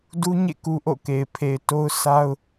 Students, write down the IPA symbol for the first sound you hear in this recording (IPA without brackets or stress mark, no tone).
d